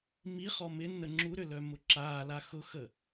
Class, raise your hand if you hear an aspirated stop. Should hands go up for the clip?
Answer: no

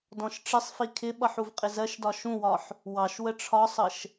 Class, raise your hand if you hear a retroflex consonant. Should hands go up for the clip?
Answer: yes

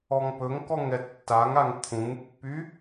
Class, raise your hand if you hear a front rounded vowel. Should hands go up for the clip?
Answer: yes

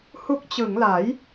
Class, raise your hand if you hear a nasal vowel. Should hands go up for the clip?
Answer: no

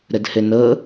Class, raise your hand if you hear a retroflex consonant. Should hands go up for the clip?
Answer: no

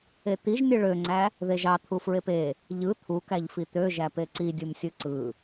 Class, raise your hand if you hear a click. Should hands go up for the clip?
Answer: yes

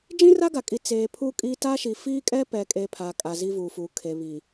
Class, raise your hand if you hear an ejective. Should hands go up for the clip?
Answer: yes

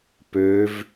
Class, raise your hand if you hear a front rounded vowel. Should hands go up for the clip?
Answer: yes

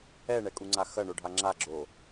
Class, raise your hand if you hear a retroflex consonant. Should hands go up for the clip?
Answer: yes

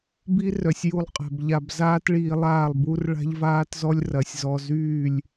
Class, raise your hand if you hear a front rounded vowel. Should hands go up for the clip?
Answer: yes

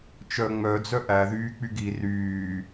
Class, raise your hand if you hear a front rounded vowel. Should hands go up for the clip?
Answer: yes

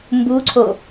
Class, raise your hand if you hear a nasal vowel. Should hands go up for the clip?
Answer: no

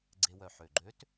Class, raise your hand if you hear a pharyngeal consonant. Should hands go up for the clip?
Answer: yes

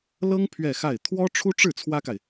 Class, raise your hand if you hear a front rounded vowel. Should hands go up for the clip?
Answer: no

